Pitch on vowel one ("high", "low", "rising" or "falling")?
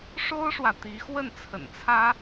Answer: high